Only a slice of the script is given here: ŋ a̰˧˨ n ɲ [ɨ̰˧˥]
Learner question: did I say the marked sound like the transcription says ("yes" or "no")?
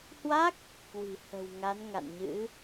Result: yes